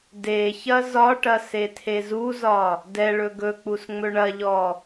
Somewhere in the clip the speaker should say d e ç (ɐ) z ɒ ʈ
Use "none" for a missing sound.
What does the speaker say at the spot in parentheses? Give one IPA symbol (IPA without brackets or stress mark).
ɐ